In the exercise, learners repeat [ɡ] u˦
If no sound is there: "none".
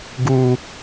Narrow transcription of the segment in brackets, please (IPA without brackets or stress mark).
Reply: ɡ